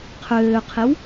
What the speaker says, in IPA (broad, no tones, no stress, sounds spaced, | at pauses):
qʰ øː qʰ e w